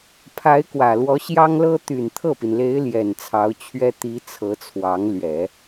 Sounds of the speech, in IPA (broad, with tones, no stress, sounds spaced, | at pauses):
pʰ a˧˥ ɪ̯ k w ä˨˩ l w ɔ˧˥ ɕ j ɑ˥ ŋ l ɤ˥ t̪ y˨˩ n t̪ʰ ɤ˥˩ p i˩ n l e˧˥ ɪ̯ l j ɛ˨˩ n t͡sʰ ɑ˧˥ ʊ̯ t͡ɕʰ ɥ ɛ˥ t̪ i˧˥ t͡sʰ ɤ˧˥ t͡sʰ w ɑ˧˥ ŋ l ɥ ɛ˨˩˦